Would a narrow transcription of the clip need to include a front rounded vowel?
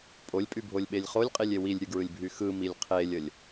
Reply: yes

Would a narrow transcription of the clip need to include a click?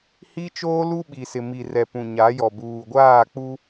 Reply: no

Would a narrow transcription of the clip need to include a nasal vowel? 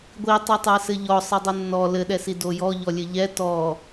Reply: no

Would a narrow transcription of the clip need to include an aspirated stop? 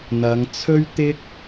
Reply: yes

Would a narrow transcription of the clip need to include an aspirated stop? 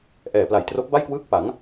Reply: no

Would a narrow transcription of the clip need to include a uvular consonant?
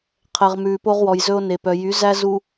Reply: yes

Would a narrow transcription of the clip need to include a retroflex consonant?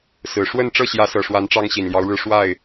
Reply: yes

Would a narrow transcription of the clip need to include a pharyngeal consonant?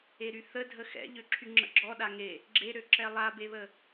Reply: no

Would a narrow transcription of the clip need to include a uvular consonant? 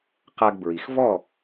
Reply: yes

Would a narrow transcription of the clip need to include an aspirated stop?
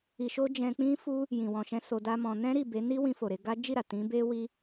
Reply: no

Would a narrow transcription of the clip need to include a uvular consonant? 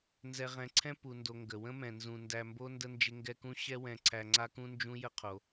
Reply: yes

